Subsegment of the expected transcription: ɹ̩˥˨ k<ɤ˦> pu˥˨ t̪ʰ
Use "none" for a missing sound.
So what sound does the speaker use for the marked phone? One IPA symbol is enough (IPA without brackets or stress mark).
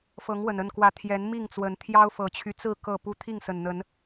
ɤ˥˨